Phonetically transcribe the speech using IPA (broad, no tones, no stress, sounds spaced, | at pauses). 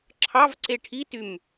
ǁʰ ɑ v ǀ e ʈʰ i t y m